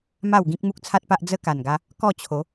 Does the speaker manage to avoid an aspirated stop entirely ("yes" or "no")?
no